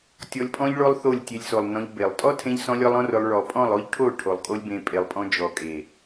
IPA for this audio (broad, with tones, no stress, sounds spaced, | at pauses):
tʲ ɔ˧ lʲ pʼ ɔ̃˦ ʎ ɭ o˦ lˠ θ o˦˨ lʲ tʲ e˧ lʲ s o˨ lˠ n ɔ̃˧ ʎ b e˨ lˠ tʼ ɔ˦ tʰ ẽ˧ ʎ s ɔ̃˧ lʲ ɔ˦ lˠ ɔ̃˦ r ʊ˧ lˠ ɭ ɔ˨ pʼ ɔ̃˦˨ lˠ o˦ ʎ ʈʰ o˦˨ ʈʰ o˨ lˠ kʼ o˦ lʲ b ẽ˧ pʼ e˨ lˠ pʼ ɔ̃˧ d͡ʒ ɔ˨ kʼ e˨